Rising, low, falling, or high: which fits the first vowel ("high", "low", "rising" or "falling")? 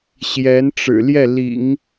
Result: rising